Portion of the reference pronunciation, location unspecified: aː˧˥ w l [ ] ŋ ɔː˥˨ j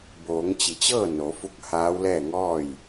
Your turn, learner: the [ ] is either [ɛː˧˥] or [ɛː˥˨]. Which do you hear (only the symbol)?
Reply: ɛː˥˨